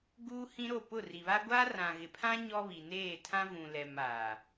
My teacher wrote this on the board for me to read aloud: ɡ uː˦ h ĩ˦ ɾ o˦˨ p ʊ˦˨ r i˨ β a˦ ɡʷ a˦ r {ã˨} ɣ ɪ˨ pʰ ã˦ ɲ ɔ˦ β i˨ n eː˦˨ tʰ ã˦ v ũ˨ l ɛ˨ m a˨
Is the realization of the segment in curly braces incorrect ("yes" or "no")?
no